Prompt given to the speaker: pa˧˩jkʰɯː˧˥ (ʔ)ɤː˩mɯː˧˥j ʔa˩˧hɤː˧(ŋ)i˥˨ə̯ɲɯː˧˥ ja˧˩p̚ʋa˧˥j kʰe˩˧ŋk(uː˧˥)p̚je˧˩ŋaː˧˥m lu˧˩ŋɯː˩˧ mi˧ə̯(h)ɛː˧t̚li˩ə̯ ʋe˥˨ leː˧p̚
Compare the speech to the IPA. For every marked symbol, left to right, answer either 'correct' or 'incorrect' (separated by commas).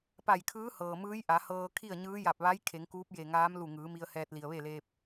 incorrect, incorrect, correct, correct